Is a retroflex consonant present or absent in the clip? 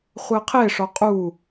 present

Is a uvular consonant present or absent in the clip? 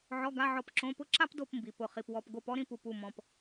present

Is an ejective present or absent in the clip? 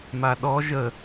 absent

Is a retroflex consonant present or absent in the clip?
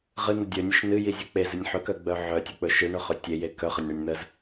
present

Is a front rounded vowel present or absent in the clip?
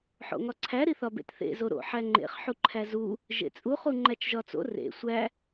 absent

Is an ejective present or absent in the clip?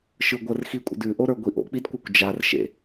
present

